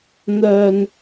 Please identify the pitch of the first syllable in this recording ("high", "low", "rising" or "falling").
high